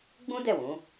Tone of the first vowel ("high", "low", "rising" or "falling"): high